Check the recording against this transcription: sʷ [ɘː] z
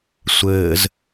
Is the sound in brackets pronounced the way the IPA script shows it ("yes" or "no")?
yes